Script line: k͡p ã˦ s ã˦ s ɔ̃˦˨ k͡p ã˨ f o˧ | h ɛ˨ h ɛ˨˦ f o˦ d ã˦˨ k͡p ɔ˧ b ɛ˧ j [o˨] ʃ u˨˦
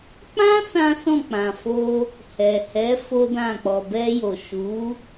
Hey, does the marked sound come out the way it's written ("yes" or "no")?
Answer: yes